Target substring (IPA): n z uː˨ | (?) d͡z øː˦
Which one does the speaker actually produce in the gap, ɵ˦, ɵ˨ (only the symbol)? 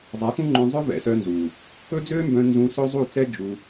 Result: ɵ˦